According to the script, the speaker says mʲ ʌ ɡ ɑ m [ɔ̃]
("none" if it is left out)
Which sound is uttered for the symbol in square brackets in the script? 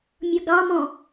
ɔ̃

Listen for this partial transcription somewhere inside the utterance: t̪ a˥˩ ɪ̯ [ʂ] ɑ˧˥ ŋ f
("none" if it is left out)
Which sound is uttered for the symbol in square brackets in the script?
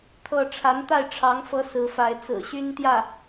ʈ͡ʂʰ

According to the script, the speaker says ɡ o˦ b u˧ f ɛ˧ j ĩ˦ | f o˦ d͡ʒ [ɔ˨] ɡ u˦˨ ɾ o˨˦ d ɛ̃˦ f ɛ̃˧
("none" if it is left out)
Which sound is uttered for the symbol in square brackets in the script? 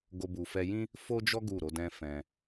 ɔ˦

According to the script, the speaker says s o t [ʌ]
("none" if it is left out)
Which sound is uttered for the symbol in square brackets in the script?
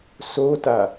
a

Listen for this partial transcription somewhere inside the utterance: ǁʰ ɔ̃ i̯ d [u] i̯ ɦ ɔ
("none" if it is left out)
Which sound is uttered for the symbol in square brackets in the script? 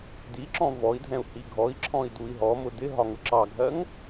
u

